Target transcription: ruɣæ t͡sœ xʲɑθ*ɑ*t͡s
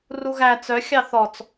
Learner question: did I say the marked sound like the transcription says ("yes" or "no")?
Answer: no